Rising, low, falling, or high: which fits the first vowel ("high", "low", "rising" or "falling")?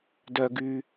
low